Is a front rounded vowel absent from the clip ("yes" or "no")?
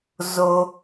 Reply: yes